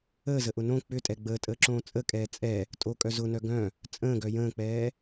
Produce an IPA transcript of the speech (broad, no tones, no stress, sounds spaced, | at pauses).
əː z ə ʔ ʊ n õ k͡p ʏ tʼ ɛ ɡ͡b əː tʼ əː ǁ õː t͡sʼ ə kʼ ɛː t͡sʼ ɛ | tʼ o kʼ œ z ʊ n œ ɡ œ̃ | t͡sʼ ə̃ː ɡ œ j ə̃ː k͡p ɛː